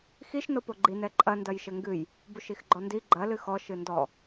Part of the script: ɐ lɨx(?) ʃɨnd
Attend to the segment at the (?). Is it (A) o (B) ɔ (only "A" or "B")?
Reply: B